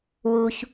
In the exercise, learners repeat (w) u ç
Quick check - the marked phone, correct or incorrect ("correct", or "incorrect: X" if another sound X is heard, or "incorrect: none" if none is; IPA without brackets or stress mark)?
correct